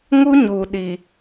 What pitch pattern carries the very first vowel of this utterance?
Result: high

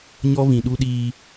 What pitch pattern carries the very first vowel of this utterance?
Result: high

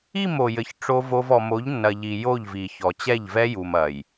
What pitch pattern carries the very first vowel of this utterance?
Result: falling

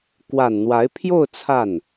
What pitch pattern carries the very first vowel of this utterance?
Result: low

